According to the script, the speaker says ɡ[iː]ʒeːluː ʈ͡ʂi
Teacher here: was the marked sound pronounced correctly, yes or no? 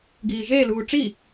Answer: yes